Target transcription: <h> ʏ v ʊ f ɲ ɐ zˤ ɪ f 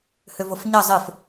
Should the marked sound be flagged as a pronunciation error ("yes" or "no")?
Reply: no